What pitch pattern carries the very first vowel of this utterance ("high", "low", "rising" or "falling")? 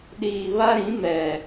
low